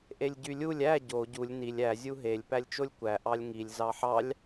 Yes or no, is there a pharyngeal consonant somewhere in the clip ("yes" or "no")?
yes